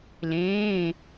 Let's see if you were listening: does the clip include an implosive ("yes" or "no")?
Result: no